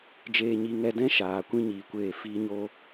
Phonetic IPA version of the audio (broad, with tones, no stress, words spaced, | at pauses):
d͡ʒeː˧ɲi˧ ŋɛ˧dɛ̃˦ ʃaː˨ kʷĩ˦ɲiː˨kʷeː˦˨ fiː˧ɲo˧